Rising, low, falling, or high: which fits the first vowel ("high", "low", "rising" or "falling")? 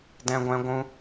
high